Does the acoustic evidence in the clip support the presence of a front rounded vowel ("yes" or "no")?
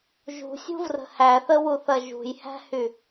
yes